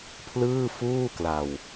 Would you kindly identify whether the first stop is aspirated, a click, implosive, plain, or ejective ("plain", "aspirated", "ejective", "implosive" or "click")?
aspirated